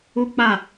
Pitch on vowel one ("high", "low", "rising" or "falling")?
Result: high